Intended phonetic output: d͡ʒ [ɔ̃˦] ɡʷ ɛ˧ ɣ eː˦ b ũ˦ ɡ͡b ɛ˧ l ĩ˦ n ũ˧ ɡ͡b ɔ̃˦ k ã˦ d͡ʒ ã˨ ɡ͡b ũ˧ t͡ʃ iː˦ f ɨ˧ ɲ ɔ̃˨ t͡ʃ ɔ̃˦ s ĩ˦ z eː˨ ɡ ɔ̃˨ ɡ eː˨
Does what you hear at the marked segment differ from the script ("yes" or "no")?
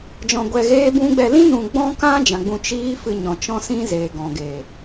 yes